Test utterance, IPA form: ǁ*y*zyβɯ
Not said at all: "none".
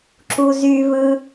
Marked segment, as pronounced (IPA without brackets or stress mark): u